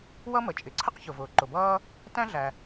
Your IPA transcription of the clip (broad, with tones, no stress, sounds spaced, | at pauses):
w ʌ˥ m ə˩ t͡ʃʼ ɪ˩ ǀʰ ə˥ q ç ʊ˩ v ʊː˩ ǃ ʊ˩ b ʌː˥ | t æ̃˥ ɮ æ˩